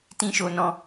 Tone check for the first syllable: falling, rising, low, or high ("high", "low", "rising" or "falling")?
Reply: high